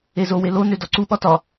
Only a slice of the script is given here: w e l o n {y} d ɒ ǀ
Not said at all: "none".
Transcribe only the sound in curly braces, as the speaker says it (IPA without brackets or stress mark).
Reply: ø